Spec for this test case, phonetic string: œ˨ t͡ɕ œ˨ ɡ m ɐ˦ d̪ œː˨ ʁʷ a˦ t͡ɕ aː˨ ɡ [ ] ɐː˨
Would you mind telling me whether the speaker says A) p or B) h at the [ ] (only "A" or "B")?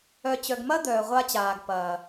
A